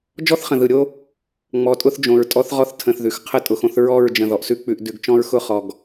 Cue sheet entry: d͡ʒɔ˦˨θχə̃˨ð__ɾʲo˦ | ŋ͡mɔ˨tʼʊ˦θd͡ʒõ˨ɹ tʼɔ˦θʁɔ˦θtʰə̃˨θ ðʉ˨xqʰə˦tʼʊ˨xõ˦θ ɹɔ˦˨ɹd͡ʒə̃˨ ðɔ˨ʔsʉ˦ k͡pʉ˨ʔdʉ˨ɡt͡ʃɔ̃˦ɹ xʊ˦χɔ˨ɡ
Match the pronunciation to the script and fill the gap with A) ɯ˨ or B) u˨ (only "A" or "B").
A